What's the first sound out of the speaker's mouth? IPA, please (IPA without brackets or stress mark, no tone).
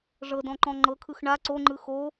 ʐ